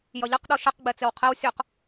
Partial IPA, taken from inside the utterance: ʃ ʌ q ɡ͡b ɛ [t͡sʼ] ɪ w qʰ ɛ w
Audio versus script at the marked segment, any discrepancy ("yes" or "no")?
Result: yes